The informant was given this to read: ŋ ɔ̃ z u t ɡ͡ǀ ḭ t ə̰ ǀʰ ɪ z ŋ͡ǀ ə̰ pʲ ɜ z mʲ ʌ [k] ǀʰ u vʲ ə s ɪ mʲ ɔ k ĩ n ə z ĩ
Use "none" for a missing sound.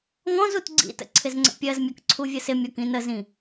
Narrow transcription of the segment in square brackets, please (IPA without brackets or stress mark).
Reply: k